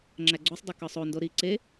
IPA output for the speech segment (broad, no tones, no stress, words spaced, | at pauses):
ŋ͡ǁæɡ͡ǀusˤdˤu kɒsˤondo ɾi ǀe